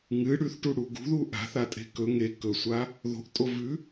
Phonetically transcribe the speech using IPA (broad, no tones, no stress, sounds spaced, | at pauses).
ŋ ɨ ɽ ʉ θ ʈ u ɽ u ɡ ṳ ð u ʔ a̤ θ a tʼ e̤ k ɵ ŋ e k ɵ sʷ a | ð o̤ ʔ tʼ o v ʉ